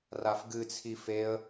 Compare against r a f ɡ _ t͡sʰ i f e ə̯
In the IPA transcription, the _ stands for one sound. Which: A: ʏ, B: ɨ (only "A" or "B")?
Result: B